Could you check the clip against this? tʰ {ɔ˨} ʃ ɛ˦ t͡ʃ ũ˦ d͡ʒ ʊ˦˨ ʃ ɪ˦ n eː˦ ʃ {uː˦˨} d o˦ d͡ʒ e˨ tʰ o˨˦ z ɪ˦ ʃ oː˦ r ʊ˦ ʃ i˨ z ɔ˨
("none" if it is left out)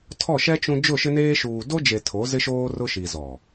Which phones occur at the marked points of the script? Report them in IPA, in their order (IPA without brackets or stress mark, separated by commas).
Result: ɔ˦˨, uː˨